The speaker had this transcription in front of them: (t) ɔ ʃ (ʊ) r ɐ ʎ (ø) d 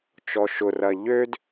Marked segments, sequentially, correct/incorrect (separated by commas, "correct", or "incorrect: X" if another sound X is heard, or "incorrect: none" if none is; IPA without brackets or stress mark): incorrect: t͡ʃ, correct, correct